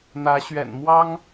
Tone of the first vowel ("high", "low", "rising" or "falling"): rising